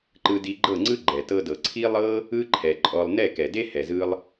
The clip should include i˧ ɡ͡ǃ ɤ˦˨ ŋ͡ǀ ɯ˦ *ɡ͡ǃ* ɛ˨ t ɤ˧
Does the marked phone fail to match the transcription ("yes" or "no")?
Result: no